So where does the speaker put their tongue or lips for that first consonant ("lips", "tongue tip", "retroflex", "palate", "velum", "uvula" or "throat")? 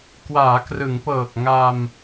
velum